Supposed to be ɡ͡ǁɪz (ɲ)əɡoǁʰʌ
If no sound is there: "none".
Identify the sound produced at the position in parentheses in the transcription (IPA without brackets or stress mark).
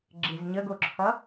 ɲ